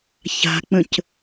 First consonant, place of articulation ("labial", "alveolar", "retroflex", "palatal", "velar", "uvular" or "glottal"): palatal